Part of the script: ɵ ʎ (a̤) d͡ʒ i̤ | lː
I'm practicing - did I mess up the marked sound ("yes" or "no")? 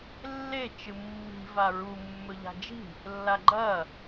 no